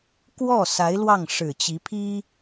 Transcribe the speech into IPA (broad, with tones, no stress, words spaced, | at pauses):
kwɔ˥˩ sa˧˥ɪ̯lwɑ˥˩ŋʂɻ̩˨˩t͡ɕi˧˥ pʰi˥